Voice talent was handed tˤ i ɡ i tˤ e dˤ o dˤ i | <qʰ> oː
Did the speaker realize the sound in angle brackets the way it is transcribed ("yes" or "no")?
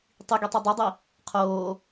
yes